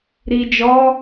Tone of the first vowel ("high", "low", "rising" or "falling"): low